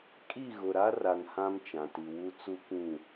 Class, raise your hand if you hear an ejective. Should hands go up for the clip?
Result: yes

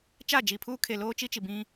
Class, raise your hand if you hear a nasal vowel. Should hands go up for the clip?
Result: yes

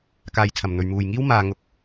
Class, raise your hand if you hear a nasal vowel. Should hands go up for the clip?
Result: no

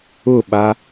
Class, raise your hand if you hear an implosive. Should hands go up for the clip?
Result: yes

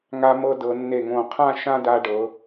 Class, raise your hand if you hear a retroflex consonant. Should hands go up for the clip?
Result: yes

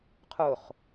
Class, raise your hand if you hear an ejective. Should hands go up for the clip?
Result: no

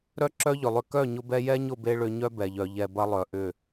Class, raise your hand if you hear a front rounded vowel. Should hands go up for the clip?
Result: yes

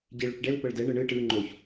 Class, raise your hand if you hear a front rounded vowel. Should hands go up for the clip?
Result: no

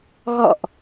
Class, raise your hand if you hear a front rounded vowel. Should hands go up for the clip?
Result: no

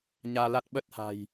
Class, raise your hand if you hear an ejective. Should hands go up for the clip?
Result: no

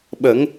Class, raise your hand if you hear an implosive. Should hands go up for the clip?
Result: yes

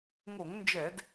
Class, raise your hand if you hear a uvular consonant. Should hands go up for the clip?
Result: no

